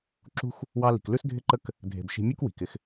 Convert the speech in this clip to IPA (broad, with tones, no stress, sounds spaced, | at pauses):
ǁ ṳ˦ x | w ɑ˧ l i̤˨ k l ʉ˦ s dʱ ɪ˦ ǃ ə˦ k | dʱ e̤˨ b ʃ i̤˧ mʲ u˦ k w i̤˨ k ɪ˦ x